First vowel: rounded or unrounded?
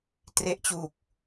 unrounded